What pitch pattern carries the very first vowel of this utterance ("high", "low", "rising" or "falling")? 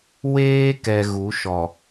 high